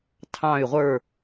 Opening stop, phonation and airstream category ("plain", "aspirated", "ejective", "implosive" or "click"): aspirated